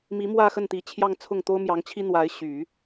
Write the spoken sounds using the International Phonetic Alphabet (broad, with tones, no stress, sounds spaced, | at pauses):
m i˧˥ m w ä˥˧ x ə˥˩ n t̪ i˧˥ t͡ɕʰ j ɑ˥˧ ŋ t͡sʰ ʊ˥˩ ŋ t̪ o˥ ʊ̯ m j ɑ˧˥ ŋ t͡ɕʰ i˥ n̪ w a˧˥ ɪ̯ ɕ y˨˩˦